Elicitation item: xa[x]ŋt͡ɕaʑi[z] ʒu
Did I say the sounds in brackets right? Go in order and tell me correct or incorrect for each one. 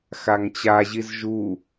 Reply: incorrect, correct

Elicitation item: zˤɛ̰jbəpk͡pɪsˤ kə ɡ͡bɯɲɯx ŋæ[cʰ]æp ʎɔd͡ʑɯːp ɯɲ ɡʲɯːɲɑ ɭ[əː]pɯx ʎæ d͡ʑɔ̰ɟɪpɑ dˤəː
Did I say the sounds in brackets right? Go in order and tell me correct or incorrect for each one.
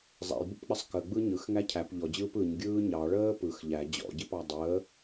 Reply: correct, correct

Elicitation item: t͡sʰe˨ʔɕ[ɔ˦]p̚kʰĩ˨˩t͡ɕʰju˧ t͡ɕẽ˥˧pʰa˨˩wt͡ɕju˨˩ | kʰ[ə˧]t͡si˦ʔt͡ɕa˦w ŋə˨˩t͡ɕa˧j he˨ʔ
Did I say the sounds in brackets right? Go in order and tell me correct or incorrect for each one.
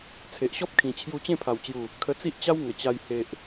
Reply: correct, correct

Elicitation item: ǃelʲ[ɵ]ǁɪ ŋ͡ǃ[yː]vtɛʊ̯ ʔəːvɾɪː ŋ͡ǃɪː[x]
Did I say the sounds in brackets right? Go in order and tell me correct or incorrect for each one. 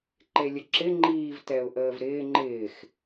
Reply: incorrect, incorrect, correct

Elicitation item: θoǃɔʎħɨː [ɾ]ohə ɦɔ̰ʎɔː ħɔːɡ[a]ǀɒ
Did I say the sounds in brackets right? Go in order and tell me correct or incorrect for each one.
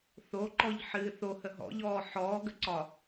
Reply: incorrect, incorrect

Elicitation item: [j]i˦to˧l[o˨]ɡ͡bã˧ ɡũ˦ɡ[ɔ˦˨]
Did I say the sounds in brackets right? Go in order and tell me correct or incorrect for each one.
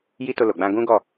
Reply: correct, correct, correct

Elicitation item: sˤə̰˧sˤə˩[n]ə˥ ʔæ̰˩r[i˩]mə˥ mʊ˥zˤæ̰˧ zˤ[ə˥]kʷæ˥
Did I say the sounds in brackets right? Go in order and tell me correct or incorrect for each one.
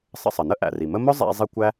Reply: correct, correct, incorrect

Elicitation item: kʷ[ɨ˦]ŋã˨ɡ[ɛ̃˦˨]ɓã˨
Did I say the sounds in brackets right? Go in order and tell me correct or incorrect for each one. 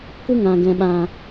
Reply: correct, incorrect

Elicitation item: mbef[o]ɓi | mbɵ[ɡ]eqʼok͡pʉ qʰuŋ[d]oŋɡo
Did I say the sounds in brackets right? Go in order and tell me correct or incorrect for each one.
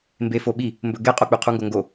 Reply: correct, correct, incorrect

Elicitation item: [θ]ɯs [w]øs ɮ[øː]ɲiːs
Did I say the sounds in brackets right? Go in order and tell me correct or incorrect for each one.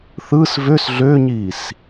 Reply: correct, incorrect, correct

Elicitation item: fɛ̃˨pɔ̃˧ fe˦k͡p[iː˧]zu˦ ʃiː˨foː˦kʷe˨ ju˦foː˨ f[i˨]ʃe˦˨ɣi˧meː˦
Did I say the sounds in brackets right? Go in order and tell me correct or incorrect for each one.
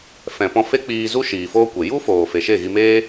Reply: correct, incorrect

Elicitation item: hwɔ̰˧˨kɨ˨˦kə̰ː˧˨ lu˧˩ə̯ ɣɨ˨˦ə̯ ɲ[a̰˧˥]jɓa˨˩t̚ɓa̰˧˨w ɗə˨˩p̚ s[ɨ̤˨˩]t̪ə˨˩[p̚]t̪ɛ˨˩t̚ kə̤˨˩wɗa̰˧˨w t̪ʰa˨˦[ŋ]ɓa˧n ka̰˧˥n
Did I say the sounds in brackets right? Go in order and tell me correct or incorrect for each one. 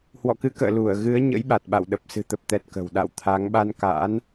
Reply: incorrect, correct, correct, correct

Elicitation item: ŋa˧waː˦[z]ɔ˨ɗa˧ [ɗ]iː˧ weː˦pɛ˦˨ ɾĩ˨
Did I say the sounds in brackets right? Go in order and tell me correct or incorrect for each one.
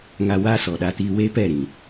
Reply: incorrect, incorrect

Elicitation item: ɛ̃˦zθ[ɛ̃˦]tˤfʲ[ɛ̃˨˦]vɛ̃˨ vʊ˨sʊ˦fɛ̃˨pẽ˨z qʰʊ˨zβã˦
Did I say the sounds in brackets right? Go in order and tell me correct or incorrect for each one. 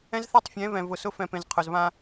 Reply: incorrect, correct

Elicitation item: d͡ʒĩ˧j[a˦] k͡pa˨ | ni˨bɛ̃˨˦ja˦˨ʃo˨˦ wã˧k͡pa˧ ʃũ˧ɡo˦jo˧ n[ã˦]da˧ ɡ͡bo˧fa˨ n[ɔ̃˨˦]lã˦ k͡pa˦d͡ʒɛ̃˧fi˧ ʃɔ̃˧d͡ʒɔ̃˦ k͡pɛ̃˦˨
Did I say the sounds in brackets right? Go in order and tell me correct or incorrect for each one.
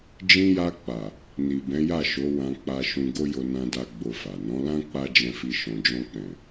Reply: incorrect, incorrect, correct

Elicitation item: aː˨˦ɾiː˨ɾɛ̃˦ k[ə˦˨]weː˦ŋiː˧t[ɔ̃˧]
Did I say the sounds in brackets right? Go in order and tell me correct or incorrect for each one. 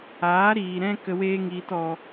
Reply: incorrect, incorrect

